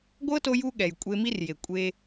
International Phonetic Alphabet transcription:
ɡʷɤ˦to˧ju˧ ɠɛ˨jkʷʼe˧mi˦rje˨ kʷʼe˧

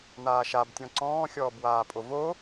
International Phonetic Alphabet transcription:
n̪aːʃabtʲɔ̃ ǀɔ̃ː xʲɔːbwaːpʼovo

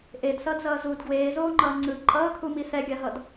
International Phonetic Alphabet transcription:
ʔedsʌːdzʌː zud ɡweːzoːŋ͡ǃʌː ŋ͡ǀɯ ǃʼʌːkʰumi sɛɡʲaɦʌd

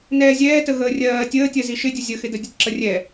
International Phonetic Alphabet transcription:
nɛːzʲɛːtəɣəː rʲɜː tʲəːtʲɜ ziʃɪ dʲəzʲəxɪdə dʲətǁərʲɛ

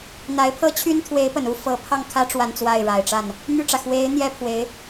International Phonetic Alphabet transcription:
n̪a˧˥ɪ̯pʰɤ˥t͡ɕʰy˥nt̪ʰwe˧˥ɪ̯ pə˨˩nu˥ fɤ˧˥pʰɑ˥˩ŋkʰä˥ ʈ͡ʂwa˥˧nt͡swa˥˩ɪ̯ɻa˨˩ɪ̯ʈ͡ʂa˥˩n | n̪y˥˩ʈ͡ʂä˩ xwe˧˥ɪ̯ n̪jɛ˥pʰwe˧˥ɪ̯

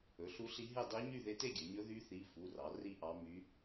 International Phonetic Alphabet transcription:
ɵ˩˧˩ɬu˧˥ɬi˧˥ɦe˥˨ dˤi˧˥ɲy˥˨ ðe˧˥te˥˨ɡʲɵ˩˧ɲɵ˧˥ ðy˧˥θi˩˧˩ fu˩˧˩rɑ˩˧ ri˥˨ʔɑ˧˥ my˧˥

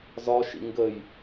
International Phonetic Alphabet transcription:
zɒʃḭ ŋɡəj

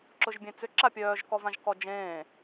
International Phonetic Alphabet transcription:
ǁʊʒbʲẽt͡sʏ ǁapʲœːʒ kɔvãʒkɔd͡ʒẽː

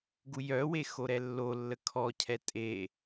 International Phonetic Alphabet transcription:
ɡujœwe xoɾɛlːolːə kʰɔcʰɛ tʼe

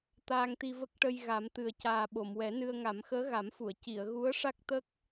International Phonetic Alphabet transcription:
t̪aː˧ŋt̪i˧və˦˥k̚ʈə˧j ɣa˨˩˦mt̪ɨ˨˩ə̯caː˨˩ ɓo˨˩˨mwɛ˨˩˦nɨ˧ə̯ ŋa˨˩˦mxəː˧˥ɣa˨˩˦mfu˨˩˨ə̯ ci˨˩˨ə̯ ɣu˧˥ə̯ ʂa˦˥k̚ t̪ə˦˥k̚

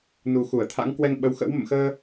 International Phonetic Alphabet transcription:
nu˨˩ xu˧˩ə̯t̪ʰa̰˧˥ŋ kwɛ˧ŋɓə˨˦wxə̰˧˥w mə̰˧˨mxəː˧

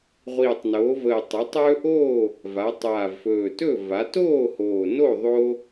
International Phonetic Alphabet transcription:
ʁʷiː˨˩tˤnoː˩˧vəː˨˩ tˤə˩˧tˤɵː˦ʔoː˥˨ | va˩˧ tˤaː˨˩vfɵː˨˩tɵ˥˨ va˩˧toː˥˨hoː˨˩ no˥˨ðˤo˦

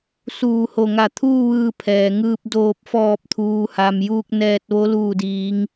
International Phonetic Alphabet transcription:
suː˧˩ho˧˩ŋa˧˩t̪ʰuː˥˨ ʋɯː˧pʰɛː˩ŋɯː˧p̚ doː˧˩p̚fɔː˧˩p̚t̪ʰuː˩ha˩m juː˧k̚ nɛː˧t̚ʋo˧˥ luː˧˩diː˩˧ŋ

